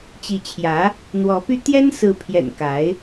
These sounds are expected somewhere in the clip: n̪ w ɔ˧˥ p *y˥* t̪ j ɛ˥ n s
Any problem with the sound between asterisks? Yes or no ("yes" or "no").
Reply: no